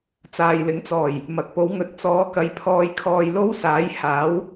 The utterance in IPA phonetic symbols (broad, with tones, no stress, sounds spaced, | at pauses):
t͡s aː˨ j l ɪ˨˥ ŋ t͡s ɔː˨˩ j | m ɐ˨ k̚ p o˨˧ w ŋ ɵ˨˥ t̚ t͡s ɔː˨˧ k ɐ˨˧ j pʰ ɔː˧ j kʰ ɔː˧ j l o˥ w s aː˨˥ j h aː˨˥ w